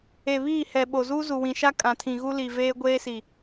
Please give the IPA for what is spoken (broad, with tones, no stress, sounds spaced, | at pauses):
e˨ β iː˦˨ h ɛ˨ ɓ o˨ z uː˦ z u˨ w ĩ˨ ʃ a˦ kʼ ã˨ tʰ ĩ˨ ɣ u˦ l i˨ v eː˦ ɡʷ eː˦ s i˨